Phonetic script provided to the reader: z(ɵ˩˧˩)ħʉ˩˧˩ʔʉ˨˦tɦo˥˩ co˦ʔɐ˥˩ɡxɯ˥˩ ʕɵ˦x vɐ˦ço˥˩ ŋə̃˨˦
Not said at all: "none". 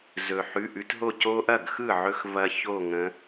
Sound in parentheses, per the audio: ɵ˩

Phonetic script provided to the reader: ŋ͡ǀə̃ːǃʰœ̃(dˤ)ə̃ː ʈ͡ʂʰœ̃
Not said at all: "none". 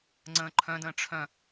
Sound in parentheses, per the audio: d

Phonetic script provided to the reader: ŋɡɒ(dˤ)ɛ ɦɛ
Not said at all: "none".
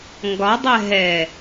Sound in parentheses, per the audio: dˤ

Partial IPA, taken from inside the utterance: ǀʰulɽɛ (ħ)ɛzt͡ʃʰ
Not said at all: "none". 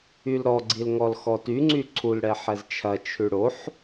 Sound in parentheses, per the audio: ħ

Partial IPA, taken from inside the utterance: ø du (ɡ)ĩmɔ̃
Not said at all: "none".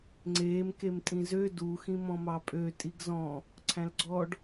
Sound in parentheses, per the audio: x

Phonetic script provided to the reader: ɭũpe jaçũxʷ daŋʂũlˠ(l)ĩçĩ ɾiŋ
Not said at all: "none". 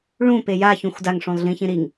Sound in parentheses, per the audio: ɮ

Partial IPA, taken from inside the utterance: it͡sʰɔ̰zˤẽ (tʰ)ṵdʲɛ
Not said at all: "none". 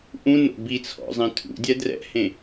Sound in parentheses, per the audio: tʰ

